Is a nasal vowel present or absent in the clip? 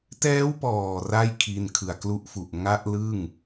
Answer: absent